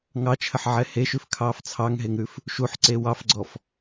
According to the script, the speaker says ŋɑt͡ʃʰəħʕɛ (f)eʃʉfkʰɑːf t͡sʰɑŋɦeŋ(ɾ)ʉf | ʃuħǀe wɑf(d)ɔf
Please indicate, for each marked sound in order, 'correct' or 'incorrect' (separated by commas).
incorrect, correct, incorrect